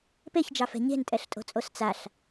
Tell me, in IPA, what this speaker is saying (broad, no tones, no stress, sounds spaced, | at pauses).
p e ç d͡ʒ ɑ f ɛ̤ ɲ e̤ n tʼ ɛ ɬ tʼ o̤ t͡sʼ o s t͡s a ɬ